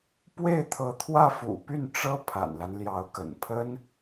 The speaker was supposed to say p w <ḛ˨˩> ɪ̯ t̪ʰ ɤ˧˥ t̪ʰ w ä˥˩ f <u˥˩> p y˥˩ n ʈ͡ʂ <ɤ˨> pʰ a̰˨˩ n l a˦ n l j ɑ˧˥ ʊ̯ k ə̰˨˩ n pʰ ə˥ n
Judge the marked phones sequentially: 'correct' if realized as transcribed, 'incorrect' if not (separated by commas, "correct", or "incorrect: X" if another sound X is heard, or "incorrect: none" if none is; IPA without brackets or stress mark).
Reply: incorrect: e˥˩, incorrect: ṵ˨˩, incorrect: ɤ˥